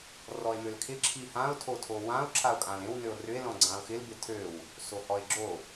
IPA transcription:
r ɔ e̯ m ø l kʰ ɪ ǁʰ i h ã o̯ tʰ o tʰ o w ã o̯ ǁʰ a o̯ kʼ ã l ẽ w n ø o̯ r ʏ e̯ l ɔ̃ ɡ͡ǀ ã o̯ x ɪ l b ɪ tʰ ø w | s o h ɔ e̯ ɡ͡ǁ o

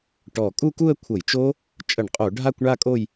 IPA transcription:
ʈ ɔ˧˩ kʼ u˥˧ k u˥˧ ə̯ kʷʰ ɤ˧˩˧ j t͡ʃ o˦˥ | t͡ʃʼ ə˧˩˧ ɳ qʼ o˧˩˧ ɖʱ a˥˧ kʷ ɳ a˥˧ kʼ o˥˧ j

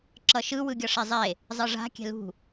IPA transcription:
ǁ ʌ ʃ ɯ w ɯ ɡʲ ʌ ʂ e zˤ e | zˤ ɯ ʐ a̤ kʲ ɛ̤ l ṳ

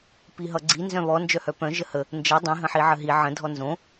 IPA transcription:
p i ɦ ʌ ɡ͡ǀ i n z œ̃ β ɔ n d͡ʒ œ h œ p œ̃ ʒ ə h ə | n d͡ʒ ʌ dˤ ĩ ɦ ə̃ ħ i ʕ ə ɦ i ʕ ə̃ dʱ ɔ n z õ

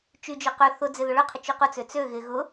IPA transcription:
t͡ʃ y d͡ʒ ʊ q ʏ θ ʊ d͡z ɪ ð ʊ ɭ ʏ qʰ ɪ t͡ʃ y q ʊ t͡s ø t͡s ø ɣ ɪ ɣ ʊ

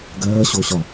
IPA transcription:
ɡ ɜː ɕ o ɕ ɒ

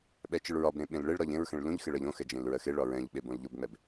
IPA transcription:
ɓ ɛ t͡ʃ ɯ ɭ ɹ ɒ b ɾ ẽ ɓ ẽ l ɭ e ɭ ɾ ɒ ʎ ẽ ɹ x ɛ̃ ɭ l ũ ʎ x e ɭ ɜ ʎ õ x ɛ d͡ʒ ẽ l ɹ ɜ x e ɭ ɒ ɹ ɛ̃ ʎ ɓ e b õ l ʎ o b ŋ͡m ɛ b

